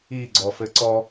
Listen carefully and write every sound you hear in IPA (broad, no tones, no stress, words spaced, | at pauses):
iɡ͡ǀɔfɘ ǀɔ